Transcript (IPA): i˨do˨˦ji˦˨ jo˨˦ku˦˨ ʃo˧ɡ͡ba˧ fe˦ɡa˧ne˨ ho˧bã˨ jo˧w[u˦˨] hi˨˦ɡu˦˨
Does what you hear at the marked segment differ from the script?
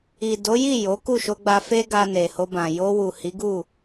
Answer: yes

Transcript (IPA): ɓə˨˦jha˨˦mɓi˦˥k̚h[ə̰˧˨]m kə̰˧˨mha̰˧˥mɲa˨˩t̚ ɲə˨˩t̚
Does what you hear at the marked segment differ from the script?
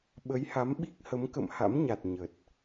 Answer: yes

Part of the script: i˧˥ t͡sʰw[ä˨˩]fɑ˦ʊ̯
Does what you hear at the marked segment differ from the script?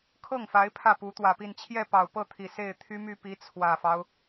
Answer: no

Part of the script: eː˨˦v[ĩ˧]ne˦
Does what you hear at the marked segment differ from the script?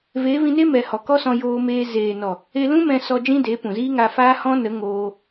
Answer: no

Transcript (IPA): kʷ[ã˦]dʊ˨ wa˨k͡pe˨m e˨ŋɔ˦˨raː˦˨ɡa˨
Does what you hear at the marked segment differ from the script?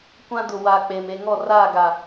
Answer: no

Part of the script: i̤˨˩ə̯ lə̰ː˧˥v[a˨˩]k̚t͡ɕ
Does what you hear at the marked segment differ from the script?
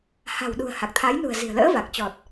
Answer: no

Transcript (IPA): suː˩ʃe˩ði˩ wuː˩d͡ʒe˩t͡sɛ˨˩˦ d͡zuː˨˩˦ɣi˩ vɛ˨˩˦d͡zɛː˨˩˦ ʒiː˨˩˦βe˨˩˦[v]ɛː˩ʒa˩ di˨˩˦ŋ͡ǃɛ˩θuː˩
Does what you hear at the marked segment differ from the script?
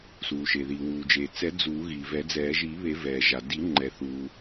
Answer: no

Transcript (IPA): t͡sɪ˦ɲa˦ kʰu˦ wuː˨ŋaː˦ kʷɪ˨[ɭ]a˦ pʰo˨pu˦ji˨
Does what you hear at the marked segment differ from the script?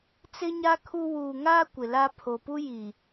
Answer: yes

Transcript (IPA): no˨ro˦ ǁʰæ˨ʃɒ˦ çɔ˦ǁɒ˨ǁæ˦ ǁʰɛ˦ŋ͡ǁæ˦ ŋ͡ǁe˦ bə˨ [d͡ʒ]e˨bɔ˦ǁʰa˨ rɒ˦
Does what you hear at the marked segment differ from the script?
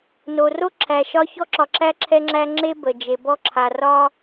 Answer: no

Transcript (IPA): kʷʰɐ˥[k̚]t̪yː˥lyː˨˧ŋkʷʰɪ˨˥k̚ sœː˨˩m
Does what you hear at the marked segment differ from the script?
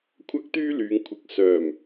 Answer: no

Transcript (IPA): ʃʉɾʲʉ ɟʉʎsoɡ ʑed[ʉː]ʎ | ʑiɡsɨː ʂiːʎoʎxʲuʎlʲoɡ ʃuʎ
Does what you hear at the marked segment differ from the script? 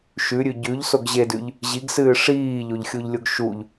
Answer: yes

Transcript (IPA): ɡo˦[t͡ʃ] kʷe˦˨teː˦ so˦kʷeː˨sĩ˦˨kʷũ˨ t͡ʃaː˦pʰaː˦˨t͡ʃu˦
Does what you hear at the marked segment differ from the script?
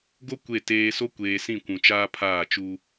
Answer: yes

